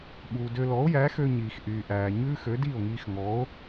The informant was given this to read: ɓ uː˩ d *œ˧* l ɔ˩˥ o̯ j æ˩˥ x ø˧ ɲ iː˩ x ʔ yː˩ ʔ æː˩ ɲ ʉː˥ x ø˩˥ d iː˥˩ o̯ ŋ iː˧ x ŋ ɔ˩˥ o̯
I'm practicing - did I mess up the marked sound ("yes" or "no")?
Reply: yes